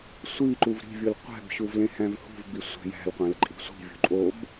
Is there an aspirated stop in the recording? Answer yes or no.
no